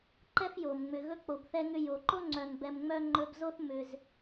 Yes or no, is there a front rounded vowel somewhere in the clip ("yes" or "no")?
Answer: yes